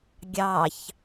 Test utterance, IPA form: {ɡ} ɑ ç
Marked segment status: incorrect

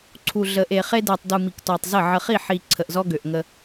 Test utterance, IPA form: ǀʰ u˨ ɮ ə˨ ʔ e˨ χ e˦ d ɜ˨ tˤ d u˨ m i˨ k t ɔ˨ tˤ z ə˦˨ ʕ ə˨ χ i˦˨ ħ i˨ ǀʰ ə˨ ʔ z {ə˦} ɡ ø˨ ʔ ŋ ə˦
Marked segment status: incorrect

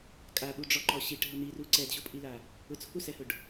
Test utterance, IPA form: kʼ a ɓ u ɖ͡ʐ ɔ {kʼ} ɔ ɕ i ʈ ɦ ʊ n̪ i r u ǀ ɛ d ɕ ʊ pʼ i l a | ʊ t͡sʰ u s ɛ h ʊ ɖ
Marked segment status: incorrect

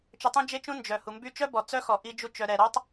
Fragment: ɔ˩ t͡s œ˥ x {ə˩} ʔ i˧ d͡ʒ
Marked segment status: incorrect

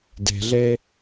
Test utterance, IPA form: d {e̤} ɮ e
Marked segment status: correct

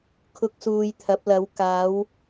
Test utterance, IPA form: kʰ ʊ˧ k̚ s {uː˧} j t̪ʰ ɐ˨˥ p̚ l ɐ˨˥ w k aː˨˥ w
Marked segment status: correct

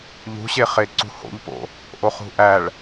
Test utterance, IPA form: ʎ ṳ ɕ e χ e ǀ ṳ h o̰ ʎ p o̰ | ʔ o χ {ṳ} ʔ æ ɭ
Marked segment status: correct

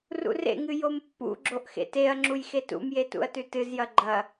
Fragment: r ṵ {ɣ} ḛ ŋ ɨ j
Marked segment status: incorrect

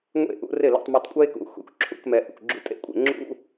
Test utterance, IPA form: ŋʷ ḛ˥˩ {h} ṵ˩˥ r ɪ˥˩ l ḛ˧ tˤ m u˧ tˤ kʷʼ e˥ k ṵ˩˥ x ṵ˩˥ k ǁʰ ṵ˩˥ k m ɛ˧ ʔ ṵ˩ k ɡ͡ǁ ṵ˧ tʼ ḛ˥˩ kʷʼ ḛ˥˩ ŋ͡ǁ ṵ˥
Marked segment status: incorrect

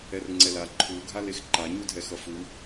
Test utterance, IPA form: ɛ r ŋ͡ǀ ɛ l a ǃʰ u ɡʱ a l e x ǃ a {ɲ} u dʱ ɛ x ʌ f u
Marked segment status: correct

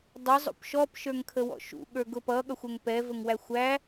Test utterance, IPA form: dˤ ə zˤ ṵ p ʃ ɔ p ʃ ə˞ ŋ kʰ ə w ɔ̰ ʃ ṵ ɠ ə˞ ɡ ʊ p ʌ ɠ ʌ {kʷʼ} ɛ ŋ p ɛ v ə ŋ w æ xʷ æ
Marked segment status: incorrect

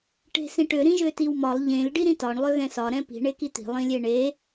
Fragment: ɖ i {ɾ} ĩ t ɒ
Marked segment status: correct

